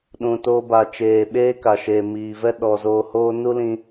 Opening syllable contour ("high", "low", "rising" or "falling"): low